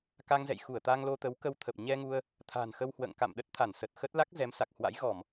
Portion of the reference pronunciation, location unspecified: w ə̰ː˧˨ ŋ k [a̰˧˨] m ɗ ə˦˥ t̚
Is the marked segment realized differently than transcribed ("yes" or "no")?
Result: no